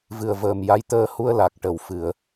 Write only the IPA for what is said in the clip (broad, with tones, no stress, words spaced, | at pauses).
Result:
vɨ˨˩ə̯vəː˨˩m ja˧˥jt̪əː˧ hu˧ə̯la˨˩k̚ ʈə˨˩w fɨ˨˩˨ə̯